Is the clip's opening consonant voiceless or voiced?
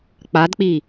voiceless